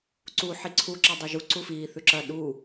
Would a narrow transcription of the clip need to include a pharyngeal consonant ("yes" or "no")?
yes